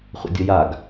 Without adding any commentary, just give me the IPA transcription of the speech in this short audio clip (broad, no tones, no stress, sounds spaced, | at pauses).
χʷ ə̰ dʲ ə j a ɡ